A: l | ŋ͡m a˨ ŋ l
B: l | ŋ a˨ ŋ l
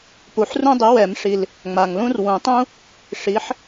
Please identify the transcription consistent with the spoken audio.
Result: A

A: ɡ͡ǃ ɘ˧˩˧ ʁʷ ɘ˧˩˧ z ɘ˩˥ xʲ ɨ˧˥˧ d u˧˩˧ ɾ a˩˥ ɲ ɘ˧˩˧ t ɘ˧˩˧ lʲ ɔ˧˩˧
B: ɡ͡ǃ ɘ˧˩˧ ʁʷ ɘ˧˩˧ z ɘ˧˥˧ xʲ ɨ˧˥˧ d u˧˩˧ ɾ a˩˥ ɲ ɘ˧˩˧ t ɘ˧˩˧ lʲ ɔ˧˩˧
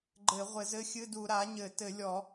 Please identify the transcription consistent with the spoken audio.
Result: B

